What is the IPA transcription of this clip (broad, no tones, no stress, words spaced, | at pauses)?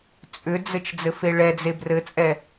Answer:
t͡sʼʏd͡zɘt͡ʃ d͡zɘfeɭɛd͡ze brɘt͡sʼɛ